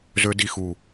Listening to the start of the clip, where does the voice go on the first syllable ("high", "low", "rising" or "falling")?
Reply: high